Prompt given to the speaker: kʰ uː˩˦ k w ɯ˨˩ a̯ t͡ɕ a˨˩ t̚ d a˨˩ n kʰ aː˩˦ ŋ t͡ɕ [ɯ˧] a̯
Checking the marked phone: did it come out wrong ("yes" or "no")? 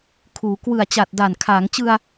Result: no